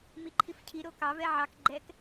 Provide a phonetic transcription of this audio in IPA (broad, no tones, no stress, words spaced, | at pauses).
miǃʰifcʰi ɾokɑ vɛʕɑk ɡ͡ǃɛk